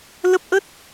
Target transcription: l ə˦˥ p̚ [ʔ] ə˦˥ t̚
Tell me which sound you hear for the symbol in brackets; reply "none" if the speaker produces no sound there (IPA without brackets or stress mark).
ʔ